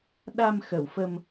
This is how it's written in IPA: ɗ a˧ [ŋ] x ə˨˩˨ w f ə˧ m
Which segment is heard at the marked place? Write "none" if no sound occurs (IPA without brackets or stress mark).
m